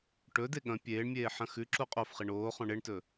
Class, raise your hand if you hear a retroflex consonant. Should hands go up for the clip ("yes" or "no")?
yes